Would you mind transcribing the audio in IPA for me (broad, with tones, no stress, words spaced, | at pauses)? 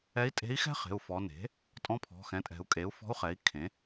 ɛ˧˥i̯tʼe̤˧˥i̯xɛ̤˥χe̤˩˧˩u̯ fɔ˩˧ne̤˩˥ | tʼɔ̃˧˥pʰɔ̤˩˧˩xɛ̃˩˥tʼɛ̤˩˧u̯ kʼe˩˥u̯fɔ̤˧˥u̯χɛ˩˥i̯ kʰẽ˩˥